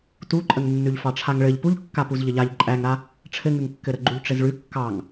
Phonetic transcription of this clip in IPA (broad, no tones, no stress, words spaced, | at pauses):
tuǃʼəŋ nːʉʎfɑʈ͡ʂʰaŋɭɘʎ puʎ kːapuzʎəʎaʎ ǃʼæŋɾa | ʈ͡ʂʰɘŋʉŋkːɘɾə ɡ͡ǃuʎʈ͡ʂɘzɭʉ kːɑŋ